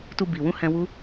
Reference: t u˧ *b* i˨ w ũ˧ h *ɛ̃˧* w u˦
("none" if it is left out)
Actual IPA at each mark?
b, ɛ̃˧

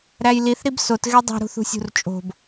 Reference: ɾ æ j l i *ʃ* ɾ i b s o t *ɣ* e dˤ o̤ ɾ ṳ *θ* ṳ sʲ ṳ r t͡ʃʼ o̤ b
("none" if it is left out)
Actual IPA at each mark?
θ, ɣ, θ

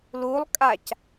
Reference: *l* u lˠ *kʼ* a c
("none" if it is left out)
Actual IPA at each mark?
l, kʼ

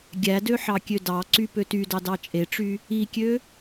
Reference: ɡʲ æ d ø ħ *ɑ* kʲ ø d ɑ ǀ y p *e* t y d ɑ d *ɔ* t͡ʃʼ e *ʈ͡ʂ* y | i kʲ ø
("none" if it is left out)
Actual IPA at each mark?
ɑ, ø, ɑ, ʈ͡ʂ

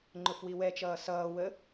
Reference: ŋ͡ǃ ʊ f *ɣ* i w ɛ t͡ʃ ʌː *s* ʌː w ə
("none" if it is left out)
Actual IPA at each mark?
w, s

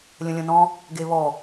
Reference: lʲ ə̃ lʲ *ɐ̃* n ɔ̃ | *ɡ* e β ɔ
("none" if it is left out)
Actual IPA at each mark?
ə̃, ɡ

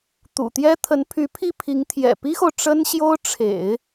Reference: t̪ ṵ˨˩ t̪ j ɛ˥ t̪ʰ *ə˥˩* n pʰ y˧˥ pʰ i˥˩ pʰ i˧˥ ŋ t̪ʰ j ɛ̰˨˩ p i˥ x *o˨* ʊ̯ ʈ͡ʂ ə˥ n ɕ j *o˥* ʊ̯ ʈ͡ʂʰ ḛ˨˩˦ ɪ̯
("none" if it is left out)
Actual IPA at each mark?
ə˧˥, o˨, o˥

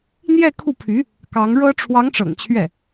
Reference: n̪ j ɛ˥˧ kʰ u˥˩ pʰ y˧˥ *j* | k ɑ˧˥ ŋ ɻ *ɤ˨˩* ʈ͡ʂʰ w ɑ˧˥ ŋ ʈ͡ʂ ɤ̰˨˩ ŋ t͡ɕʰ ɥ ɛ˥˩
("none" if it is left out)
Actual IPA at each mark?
none, ɤ˥

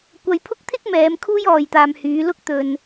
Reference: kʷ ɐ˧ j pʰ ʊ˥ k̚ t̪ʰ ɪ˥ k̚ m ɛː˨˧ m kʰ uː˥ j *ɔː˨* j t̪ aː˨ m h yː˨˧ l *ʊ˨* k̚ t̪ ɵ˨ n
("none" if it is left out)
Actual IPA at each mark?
ɔː˨, ʊ˥

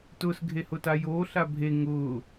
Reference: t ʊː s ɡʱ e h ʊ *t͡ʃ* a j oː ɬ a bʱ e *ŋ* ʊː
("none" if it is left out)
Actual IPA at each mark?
t, ŋ

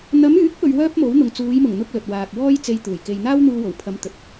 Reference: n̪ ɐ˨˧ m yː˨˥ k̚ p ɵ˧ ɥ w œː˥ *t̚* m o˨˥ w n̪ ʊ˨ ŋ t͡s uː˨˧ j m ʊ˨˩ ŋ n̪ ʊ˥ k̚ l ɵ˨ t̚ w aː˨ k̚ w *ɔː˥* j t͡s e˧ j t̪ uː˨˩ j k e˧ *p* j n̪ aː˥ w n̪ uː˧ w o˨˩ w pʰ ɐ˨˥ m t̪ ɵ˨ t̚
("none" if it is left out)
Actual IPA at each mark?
p̚, ɔː˥, none

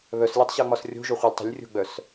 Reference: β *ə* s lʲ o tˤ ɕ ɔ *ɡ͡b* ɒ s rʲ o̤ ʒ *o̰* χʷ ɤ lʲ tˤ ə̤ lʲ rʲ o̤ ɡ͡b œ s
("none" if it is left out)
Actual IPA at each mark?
œ, ŋ͡m, o

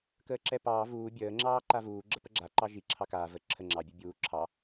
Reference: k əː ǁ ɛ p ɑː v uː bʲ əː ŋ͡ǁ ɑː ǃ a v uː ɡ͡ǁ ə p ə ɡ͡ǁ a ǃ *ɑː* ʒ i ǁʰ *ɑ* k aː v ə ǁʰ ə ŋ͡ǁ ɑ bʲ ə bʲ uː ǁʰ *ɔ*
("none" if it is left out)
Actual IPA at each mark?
ɑ, ɑ, ɑ

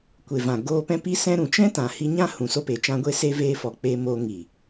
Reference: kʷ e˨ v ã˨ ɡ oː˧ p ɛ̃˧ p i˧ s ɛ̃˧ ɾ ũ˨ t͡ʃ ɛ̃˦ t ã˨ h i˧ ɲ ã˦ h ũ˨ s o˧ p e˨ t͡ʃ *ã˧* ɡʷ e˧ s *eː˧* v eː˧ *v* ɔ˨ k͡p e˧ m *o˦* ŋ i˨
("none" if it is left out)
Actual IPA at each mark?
ã˧, e˧, f, o˧

